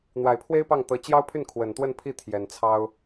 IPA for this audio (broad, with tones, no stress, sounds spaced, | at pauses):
n̪ w a˨˩ ɪ̯ pʰ w e˥ ɪ̯ p ɑ˥˩ ŋ t̪ ɤ˧˥ t͡ɕ j ɑ˥ ʊ̯ pʰ y˥˩ n kʰ w ə˨˩ n t̪ w ə˥˧ n pʰ i˥˩ t̪ʰ j ɛ˨˩ n t͡sʰ ɑ˥ ʊ̯